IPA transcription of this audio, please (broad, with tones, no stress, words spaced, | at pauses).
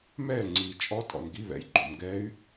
mɛː˥˨ŋ͡ǀiː˨ t͡ʃʼɔ˦˥tʼɔ̰˨n ɡi˧˥˧βɛ̰˩˥jɡ͡ǃo̰˨m ɡɛː˦˥y̯